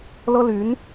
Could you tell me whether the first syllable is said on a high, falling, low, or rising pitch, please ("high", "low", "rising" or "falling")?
high